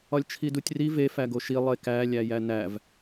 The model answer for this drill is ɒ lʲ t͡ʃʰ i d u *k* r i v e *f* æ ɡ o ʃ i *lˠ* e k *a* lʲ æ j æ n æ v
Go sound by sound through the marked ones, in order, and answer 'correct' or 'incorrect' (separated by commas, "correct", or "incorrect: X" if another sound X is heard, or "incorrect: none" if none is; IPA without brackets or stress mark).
incorrect: tʲ, correct, correct, incorrect: æ